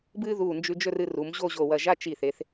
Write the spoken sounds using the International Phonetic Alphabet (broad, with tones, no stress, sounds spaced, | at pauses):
b ɨː˥ ð uː˧˩ n d͡ʒ ʉ˧ d͡ʒ ɵ˥˧ r ɨ˧ r u˩˧ m ʑ o˥˧ ʑ o˧˩ w ɐ˧˩ ʒ a˥˧ t͡ʃ i˧˩ θ e˩˧ θ